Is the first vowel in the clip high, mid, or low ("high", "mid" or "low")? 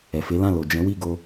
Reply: mid